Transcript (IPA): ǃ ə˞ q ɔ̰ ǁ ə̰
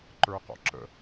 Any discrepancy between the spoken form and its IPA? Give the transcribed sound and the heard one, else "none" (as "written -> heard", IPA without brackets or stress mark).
none